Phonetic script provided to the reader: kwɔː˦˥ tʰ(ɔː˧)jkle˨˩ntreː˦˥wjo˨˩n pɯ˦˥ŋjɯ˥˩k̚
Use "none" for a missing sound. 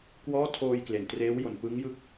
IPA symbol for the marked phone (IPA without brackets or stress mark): oː˧